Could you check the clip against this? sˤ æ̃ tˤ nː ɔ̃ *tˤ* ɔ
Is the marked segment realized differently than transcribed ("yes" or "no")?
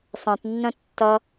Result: yes